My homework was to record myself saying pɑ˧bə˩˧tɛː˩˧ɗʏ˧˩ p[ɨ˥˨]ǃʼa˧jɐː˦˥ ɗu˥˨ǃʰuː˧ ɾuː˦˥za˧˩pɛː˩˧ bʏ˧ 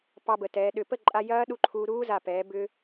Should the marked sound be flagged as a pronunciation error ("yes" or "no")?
yes